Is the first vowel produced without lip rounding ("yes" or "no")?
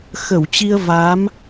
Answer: yes